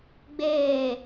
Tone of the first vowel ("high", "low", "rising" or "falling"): falling